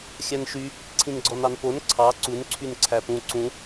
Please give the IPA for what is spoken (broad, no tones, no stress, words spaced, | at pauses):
xʲænʃy | ǀʰĩnɡ͡ǀɔnɑnpon ǀʰɑ ǀun ǀʰynǀʰæpũ ǀũ